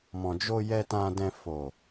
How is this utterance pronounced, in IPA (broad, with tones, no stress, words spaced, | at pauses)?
mɔ̃˨d͡ʒo˧jɛ˧ tã˧dɛ̃˧ fo˨